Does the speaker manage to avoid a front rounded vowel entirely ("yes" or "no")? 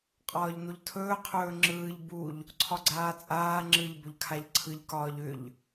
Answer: no